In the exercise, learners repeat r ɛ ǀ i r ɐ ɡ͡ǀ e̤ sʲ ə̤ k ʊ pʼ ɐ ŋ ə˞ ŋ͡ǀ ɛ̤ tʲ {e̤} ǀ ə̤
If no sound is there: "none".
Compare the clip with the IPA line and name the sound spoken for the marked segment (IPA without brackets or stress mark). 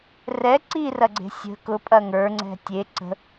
e